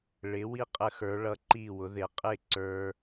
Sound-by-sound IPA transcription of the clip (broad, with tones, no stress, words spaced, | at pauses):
ɭɪ˩˧wi˧ qʼə˧xə˞˩˧ɭʌ˧ ǃi˧˩wʊ˩˧ ðɪ˩˧qʼɪ˧˩ ǀə˞˧